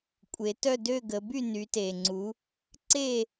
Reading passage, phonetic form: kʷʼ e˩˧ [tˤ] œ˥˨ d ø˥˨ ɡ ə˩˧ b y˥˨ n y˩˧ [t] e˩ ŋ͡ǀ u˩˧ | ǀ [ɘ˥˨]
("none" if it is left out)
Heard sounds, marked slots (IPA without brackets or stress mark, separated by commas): t, t, e˥˨